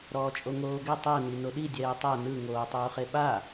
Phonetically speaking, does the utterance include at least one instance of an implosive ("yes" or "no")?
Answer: yes